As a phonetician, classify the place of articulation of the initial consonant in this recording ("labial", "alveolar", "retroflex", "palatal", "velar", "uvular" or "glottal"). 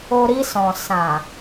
alveolar